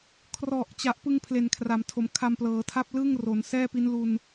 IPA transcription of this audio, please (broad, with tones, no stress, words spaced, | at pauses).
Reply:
kʰrɔ˨˩ʔ t͡ɕa˨˩ʔpɯ˧ŋ pʰle˨˩nkʰra˩˦mtʰo˩˦m kʰa˧mplɤː˩˦tʰa˥˩p̚ lɯ˥˩ŋro˩˦n sɛː˥˩pi˦˥nlu˧n